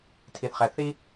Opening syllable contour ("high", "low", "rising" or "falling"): low